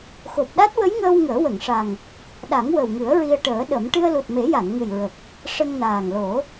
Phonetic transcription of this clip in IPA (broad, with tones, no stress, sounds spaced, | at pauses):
x o˨˩ p̚ ɗ a˦˥ t̚ w ə˧˥ j ŋ əː˧ w ŋ əː˨˩˦ w ə˨˩˨ ŋ ʂ a˨˩ ŋ | ɗ a˨˩˦ ŋ w ə˨˩ w ŋ ɨ˨˩˦ ə̯ ɹ i˧ ə̯ ʈ əː˨˩˦ ɗ ə˨˩˦ m ʈ ɨ˧ ə̯ l u˨˩ t̚ m e˨˩˦ j a˨˩˨ n ŋ ɨ˨˩ j ɹ ə˨˩ k̚ | ʂ ə˧ ŋ n aː˨˩ ŋ l o˨˩˦